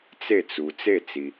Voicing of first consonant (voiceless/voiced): voiceless